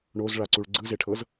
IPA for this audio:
ɳ o z ɭ a ǀ u ɭ ɡ͡ǀ ɯ z e ʈʰ ɤ z

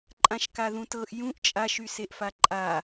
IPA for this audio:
ǃʼ ã ʃ k a ð ũ t ɤ ʔ j ũ ʔ t͡ʃʼ a ʃ y s e ʔ f a ǃʼ a

